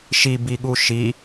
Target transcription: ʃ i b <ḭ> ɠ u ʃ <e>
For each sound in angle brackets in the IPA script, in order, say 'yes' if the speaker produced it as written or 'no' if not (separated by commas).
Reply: no, no